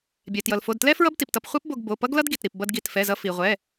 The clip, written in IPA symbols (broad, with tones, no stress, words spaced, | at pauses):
bʲɛ˩tjʌ˩lfo˩˧˩dtlɛ˥ fɹʌ˥bti˩ptʌ˧p χʷɛ˥pbo˧ɡ bo˩˧˩pʌ˥ɡlʌ˥d ɡi˩tɾi˩p bʌ˧dɡi˩˧˩tfɛ˩˧˩zʌ˧ fi˩ʁʷɛ˩˧˩